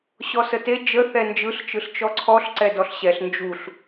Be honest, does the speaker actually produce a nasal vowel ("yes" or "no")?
no